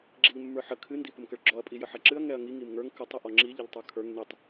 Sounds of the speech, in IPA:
ɡ͡ǁ i ʎ mː ə˞ ħ ə kʰ ɨ n d i p ə m k ə ɭ ɡ͡ǁ ɔ ɐ̯ pʼ i j ə ħ ɛ ǁ ɨ ɐ̯ ŋ ɛ ɐ̯ ŋ i ŋ i m ŋ ə˞ ŋ k ə tˤ ə ʔ ɔ ŋ͡ǁ i ʎ ə ʎ tˤ ə˞ kʰ ə˞ ŋ n i tˤ

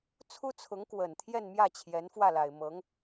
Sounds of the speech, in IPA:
t͡sʰ u˥ t͡sʰ ʊ˧˥ ŋ k w ə˨˩ n t̪ʰ j ɛ˥˧ n m j ä˥˩ t͡ɕʰ j ɛ˧˥ n f w ä˥˩ l a˨˩ ɪ̯ m ɤ˧˥ ŋ

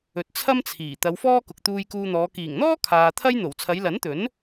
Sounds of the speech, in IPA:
ɵ˨ t̚ t͡sʰ ɐ˥ m t͡sʰ iː˨˩ t̪ ɐ˨˧ w f ɔː˥ k ʊ˨ k̚ t̪ uː˧ j k uː˧ n̪ ɔː˨˧ k iː˨˩ ŋ n̪ ɔː˥ kʰ aː˨ t̪ʰ ɐ˥ j n̪ o˨˩ w t͡sʰ ɐ˨˧ j l ɐ˨˥ n t̪ ɵ˨˥ n

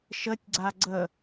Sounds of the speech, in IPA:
ʃ ə tʲ ɡ͡ǀ a ɡ͡ǀ ə

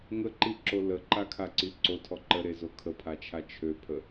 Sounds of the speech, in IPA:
ŋ ə ǃ i ǁ o l ə ǃ a kʰ a ǀ i ǀ o tʰ ɔ ǃ ə ɾ e z o kʰ ə pʰ a t͡ʃʰ a t͡ʃʰ ø pʰ ə

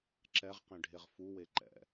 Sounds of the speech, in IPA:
ǁ ɛ ʁ q ẽ ɖʱ e ʁ f u w e ǃ ɛ̰

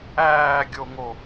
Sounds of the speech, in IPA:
æː ɡʲ o ŋ o

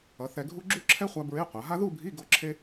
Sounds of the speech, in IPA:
ʌ˩˧ θ ɛ˧ ɡʱ u˥ ɡ͡ǁ u˥˧ ǁʰ ɛ˥ χʷ a˧ b ɹ e˧˥˧ qʷ a˩˧ ɦ a˥ ð u˥˧ bʱ i˧˥˧ ɡ o˥˧ ǁʰ e˥

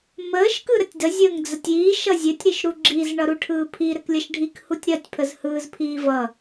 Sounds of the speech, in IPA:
m əː ʃ k ɯ ɾ ə tʲ d ə zʲ əː ŋ d͡z ə tʲ iː ʃ ʌ zʲ ɘ tʲ ɾ i ʃ ɾ u ɡ͡ǁ i z ɳ ʌ ɾ u ʈʰ ɯː pʰ i ɾ ɘ k lʲ ʌ ʃ ɖʱ i k h u tʲ ɾ ɜ tʲ pʰ ə z h ɯː z pʰ iː v ʌ

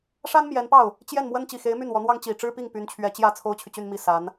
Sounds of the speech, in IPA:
ʂ a˥ n m j ɛ˧˥ n p ɑ˥˩ ʊ̯ | t͡ɕ j ɛ˥˩ n m w ə˥ n t͡ɕ i˨˩ x e˧˥ ɪ̯ m y˥˩ n w ɔ˧˥ n̪ w ɑ˥ ŋ t͡ɕ i˨˩ ʈ͡ʂ ɻ̩˥ p i˥˩ ŋ p y˧˥ n t͡ɕʰ ɥ ɛ˧˥ t͡ɕ j ä˥˩ t͡sʰ o˥ ʊ̯ t͡ɕʰ y˨ t͡ɕ y˥˧ n m i˥˩ s a˧˥ n

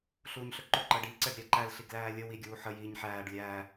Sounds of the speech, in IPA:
ɬ uː ɲ ɬ ɵ ǃ ɵ ǃ əː ɖ iː ǀ ɛ ɖ ɾʲ æ ǃ æ l ɬ i ɡ l æː lʲ ə w i ɡʲ uː ħ ə j iː ɲ ħ æː ɖ lʲ æː

